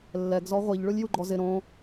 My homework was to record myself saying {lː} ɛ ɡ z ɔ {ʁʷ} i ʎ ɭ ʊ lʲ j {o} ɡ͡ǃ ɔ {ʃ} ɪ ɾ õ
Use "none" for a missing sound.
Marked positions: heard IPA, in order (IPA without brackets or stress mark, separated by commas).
lː, ʁʷ, u, z